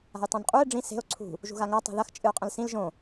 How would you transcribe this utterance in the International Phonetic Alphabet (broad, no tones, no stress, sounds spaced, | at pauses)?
a̤ j tˤ õ n qʼ u e̯ ɖ͡ʐ ĩ s e̤ o̯ ǀʰ ṳ | ʒ ṳ ɣ a ŋ a tˤ i̤ ð ɐ x t͡ʃʼ ɨ o̯ qʼ ɐ̃ l s ĩ l ʒ õ